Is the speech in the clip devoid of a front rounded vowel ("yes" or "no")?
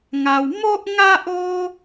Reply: yes